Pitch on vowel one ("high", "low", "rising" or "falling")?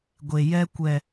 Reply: low